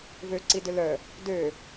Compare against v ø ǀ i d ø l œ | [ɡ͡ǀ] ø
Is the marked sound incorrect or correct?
incorrect: d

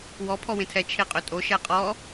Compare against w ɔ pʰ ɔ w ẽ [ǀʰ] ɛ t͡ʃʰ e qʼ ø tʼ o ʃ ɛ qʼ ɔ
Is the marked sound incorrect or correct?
incorrect: tʰ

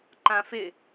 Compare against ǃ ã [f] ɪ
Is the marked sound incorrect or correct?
correct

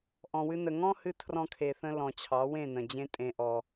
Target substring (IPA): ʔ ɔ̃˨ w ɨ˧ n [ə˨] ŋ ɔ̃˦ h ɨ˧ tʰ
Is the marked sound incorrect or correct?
correct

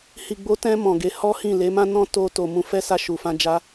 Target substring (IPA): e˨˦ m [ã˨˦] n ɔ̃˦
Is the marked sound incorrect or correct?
incorrect: ã˦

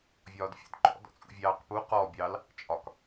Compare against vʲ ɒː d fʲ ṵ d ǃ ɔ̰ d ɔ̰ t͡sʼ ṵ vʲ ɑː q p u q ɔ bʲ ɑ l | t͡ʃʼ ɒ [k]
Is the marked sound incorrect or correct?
correct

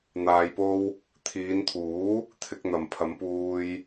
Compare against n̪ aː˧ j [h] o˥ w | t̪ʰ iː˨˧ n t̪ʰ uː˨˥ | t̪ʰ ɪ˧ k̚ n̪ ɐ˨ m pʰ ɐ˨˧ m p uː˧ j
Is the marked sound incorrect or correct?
incorrect: p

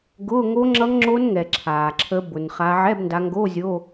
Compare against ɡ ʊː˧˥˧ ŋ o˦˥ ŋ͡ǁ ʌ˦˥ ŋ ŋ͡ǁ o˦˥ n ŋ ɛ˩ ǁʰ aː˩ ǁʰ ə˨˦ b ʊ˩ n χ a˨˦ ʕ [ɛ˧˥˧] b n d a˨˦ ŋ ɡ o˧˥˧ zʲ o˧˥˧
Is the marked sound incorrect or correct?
correct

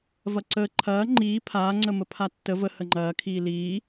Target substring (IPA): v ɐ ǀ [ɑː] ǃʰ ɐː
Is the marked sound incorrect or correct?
incorrect: əː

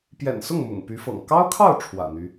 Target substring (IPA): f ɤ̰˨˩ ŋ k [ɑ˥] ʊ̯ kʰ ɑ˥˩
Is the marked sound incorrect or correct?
correct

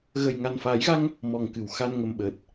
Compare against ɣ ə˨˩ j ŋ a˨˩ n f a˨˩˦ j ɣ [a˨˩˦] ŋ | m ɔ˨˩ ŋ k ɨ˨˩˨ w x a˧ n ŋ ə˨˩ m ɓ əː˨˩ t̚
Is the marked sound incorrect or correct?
incorrect: a˧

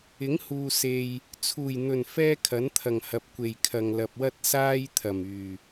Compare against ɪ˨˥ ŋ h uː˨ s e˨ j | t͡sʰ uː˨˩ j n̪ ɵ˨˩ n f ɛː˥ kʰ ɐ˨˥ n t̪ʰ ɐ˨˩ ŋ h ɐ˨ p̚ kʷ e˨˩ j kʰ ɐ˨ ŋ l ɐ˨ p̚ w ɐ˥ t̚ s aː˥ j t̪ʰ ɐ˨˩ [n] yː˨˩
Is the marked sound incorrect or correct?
incorrect: m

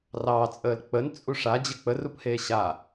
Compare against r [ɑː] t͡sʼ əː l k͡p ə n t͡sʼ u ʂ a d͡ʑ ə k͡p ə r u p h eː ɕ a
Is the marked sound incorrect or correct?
correct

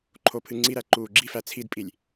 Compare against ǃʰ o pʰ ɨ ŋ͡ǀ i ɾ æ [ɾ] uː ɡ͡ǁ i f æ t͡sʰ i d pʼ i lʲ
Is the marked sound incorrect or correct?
incorrect: ǃ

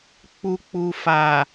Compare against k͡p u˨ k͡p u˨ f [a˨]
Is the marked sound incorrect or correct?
correct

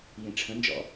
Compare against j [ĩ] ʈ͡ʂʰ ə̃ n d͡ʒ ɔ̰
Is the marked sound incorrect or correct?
correct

